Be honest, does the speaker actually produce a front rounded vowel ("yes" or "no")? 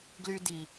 yes